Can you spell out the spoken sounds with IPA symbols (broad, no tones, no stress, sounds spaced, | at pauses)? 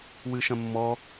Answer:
w ɨ ʃ ɐ̃ mː ɔ